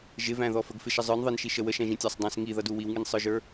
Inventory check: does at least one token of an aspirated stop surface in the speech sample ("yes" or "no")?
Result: no